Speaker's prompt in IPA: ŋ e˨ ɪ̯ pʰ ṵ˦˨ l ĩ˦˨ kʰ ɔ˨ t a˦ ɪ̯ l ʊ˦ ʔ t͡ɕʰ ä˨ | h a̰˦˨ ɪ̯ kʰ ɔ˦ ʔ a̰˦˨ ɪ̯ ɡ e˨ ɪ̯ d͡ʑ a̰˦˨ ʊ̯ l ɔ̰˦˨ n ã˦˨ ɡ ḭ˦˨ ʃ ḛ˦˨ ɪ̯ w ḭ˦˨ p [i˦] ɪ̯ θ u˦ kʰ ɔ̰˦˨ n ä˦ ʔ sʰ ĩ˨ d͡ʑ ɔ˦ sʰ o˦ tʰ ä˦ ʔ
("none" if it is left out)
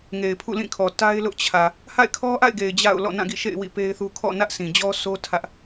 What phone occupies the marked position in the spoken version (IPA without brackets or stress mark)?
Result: e˦